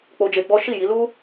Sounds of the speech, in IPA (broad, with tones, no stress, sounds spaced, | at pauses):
k͡p o˧ d͡ʒ e˧ ɡ͡b ɔ˦ ʃ i˦˨ j i˨˦ l u˦